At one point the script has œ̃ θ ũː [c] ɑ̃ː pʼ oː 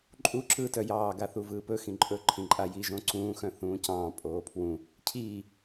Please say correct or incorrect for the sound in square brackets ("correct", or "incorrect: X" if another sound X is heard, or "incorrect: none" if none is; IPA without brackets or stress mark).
correct